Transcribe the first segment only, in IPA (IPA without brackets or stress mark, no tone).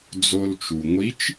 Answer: d͡z